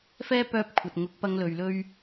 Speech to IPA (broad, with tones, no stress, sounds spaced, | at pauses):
f ɛː˥ p œː˧ p̚ kʷʰ ɐ˨ t̚ ŋ ʊ˨˥ k̚ p ɐ˧ ŋ l ɵ˨ ɥ l ɵ˥ ɥ